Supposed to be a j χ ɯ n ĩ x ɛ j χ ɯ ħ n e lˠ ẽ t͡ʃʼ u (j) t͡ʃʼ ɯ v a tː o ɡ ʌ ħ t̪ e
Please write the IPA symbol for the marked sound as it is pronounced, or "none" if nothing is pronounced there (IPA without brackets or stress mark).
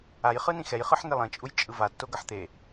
j